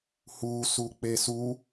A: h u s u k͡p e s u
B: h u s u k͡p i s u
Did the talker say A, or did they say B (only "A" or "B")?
A